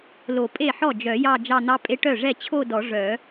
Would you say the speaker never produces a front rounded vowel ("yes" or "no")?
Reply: no